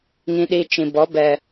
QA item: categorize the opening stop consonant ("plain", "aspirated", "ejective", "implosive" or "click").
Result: implosive